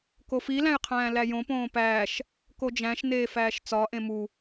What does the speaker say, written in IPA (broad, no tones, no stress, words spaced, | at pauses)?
kofilæ̃j qʰæ̃ːlæjõpõː pæːʃ | kod͡ʒæ̃ʃneː fæːʃt͡sɒʔẽ mu